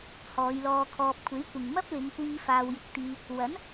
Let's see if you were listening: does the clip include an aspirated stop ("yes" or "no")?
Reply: yes